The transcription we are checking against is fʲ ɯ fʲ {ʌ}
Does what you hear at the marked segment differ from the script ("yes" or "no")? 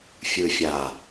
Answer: yes